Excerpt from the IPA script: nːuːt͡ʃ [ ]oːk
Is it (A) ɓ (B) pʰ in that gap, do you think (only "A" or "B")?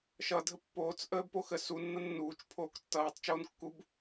B